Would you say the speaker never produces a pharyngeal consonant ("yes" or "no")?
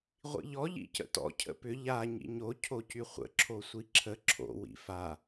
yes